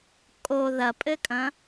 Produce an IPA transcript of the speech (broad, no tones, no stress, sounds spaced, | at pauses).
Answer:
kʼ o ð ɐ pʼ ɘ kʼ ɐ̃